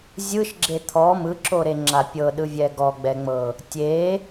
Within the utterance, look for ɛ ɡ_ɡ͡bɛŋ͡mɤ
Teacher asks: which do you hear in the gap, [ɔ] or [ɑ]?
ɔ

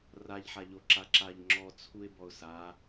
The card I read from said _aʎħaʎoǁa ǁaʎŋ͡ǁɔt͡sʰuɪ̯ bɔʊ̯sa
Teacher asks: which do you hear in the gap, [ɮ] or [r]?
r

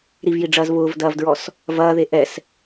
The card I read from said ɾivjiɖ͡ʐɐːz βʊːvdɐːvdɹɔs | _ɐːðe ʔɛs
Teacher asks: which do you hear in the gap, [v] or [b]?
v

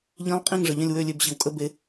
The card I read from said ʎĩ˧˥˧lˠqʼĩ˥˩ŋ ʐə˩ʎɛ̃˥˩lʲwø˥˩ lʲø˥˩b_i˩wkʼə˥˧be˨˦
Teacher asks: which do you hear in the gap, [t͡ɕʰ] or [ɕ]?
ɕ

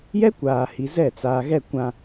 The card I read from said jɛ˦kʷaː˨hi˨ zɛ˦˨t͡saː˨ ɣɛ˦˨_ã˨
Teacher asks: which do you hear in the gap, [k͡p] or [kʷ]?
kʷ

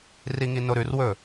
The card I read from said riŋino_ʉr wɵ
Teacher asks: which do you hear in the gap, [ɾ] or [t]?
ɾ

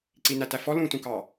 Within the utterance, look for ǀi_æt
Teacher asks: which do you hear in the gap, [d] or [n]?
n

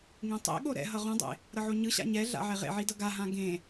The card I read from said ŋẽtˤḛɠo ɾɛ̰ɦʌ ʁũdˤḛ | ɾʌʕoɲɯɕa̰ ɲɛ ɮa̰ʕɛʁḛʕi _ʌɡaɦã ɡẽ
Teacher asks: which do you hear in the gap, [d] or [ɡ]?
d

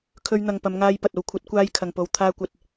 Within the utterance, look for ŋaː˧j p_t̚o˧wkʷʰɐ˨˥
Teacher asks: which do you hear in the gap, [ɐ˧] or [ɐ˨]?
ɐ˨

